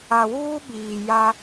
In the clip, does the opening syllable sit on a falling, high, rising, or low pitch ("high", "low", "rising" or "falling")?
low